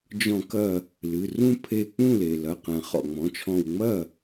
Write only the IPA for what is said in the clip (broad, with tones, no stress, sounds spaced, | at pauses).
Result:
d͡ʒ ɔ̃˧˩˧ k ɐ˧˩ | l ɨ˩˧˩ r ũ˥˧ pʰ e˧˩ k͡p ũ˥˩ l e˩ l ɐ˩˧˩ q ɛ̃˩ χ ɔ̰˩ ŋ͡m ɔ̃˩˧˩ t͡ʃʰ ɔ̃˧˩ w ŋ͡m ɐ˥˩